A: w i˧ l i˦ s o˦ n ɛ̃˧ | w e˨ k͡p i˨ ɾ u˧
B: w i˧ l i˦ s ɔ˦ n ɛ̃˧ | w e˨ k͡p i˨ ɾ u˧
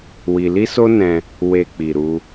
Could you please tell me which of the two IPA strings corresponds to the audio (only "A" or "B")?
A